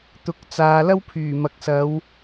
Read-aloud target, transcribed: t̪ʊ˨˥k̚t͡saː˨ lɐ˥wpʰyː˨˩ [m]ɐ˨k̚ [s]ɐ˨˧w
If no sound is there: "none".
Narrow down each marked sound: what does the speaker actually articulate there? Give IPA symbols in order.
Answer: m, s

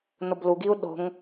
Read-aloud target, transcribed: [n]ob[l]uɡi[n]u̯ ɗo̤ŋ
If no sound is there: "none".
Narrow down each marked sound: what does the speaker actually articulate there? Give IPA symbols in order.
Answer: n, l, none

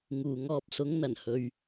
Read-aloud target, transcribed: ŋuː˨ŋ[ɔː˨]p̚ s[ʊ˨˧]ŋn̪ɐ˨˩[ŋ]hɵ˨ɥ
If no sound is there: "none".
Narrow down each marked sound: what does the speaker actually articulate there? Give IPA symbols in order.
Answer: ɔː˧, ʊ˨˧, n

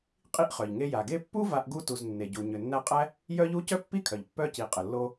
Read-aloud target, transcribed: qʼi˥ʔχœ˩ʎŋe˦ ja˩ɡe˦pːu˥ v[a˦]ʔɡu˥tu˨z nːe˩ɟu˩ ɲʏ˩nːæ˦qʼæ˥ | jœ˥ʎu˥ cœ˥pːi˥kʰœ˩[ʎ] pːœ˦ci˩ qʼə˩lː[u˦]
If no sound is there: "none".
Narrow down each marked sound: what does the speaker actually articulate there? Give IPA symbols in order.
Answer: a˦, ʎ, o˦

